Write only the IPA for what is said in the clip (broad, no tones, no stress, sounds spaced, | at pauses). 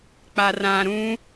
k͡p a r ã ɾ ũ